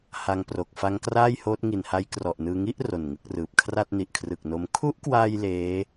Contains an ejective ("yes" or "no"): no